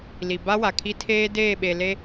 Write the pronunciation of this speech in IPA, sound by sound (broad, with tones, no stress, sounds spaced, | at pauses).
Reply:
l i˨ b a˦ w a˨ kʰ i˦ tʰ eː˦ d eː˦˨ ɓ e˨ l e˦